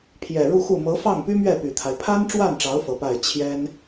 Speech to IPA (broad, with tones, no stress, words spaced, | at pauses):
pʰjɛ˨˩ɻu˥˧xu˥˩ mɤ˧˥fɑ˥˩ŋpy˥mɥɛ˥˩ py˨˩t̪ʰa˦ɪ̯ pʰa˥nʈ͡ʂwa˥˩nʈ͡ʂɑ˧˥ʊ̯ fɤ˧˥pa˥˩ɪ̯ t͡ɕʰjɛ˥n